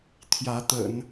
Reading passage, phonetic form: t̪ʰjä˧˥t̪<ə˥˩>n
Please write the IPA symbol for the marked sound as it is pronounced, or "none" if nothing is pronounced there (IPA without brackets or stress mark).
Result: ə̰˨˩˦